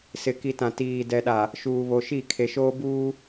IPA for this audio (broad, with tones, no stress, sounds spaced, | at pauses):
s ɪ˨ k i˨ t ã˨ t iː˨ d ɛ˨ ɗ a˨ | ʃ uː˨ β o˨ ʃ i˦˨ kʰ e˨ ʃ oː˦ b uː˦